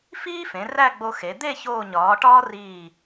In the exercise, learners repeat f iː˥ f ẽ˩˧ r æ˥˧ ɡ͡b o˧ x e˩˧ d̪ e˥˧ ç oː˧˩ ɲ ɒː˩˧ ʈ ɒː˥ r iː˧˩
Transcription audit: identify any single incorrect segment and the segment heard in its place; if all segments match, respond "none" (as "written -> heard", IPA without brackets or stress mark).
none